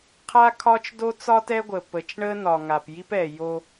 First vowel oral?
yes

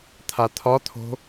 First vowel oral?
yes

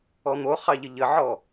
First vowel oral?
yes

